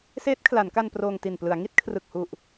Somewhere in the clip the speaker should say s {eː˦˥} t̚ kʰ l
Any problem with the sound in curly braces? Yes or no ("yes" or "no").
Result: no